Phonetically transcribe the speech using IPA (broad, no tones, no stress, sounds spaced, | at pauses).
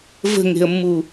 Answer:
v ə̤ ŋ e̤ ə̯ mː u